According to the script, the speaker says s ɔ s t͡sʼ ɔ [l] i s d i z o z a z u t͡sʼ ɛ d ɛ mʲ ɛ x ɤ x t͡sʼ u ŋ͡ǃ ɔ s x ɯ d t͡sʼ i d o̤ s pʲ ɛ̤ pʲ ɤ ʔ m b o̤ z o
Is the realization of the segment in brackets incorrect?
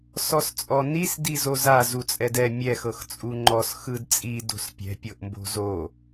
yes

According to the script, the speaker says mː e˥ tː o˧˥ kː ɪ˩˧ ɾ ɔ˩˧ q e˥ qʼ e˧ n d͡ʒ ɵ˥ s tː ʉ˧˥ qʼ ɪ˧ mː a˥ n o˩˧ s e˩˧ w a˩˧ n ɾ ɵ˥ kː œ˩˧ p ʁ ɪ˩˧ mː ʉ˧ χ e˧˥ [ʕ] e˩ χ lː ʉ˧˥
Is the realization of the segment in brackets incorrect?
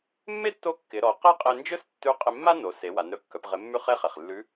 yes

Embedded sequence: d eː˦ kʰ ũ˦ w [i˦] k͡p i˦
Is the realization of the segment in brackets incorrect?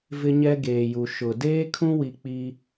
yes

